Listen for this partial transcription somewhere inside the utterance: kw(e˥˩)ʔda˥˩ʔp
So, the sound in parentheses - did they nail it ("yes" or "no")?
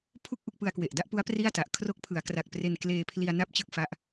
no